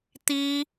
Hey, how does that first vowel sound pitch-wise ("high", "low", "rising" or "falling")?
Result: high